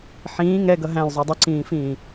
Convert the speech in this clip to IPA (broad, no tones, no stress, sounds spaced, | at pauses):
ħ ĩː ŋ ɛ ɡ ʌ ɦ æ̃ l zˤ u dˤ ɪ ǀ ĩː f ĩː